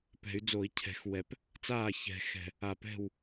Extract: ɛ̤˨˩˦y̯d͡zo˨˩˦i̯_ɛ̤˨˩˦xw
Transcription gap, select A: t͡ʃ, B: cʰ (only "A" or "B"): B